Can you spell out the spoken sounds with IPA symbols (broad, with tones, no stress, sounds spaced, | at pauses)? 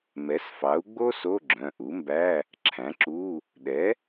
m ɛ˩˥ s f ɑ˩˥ u̯ ɡ͡b o˥ s o˧˥˧ ɡ͡ǁ œ̃˩˧˩ ʔ u˩˥ m b æ˧˥˧ | ǁʰ æ̃˩˥ ǁ u˧˥˧ | ɗ ɛ˩˥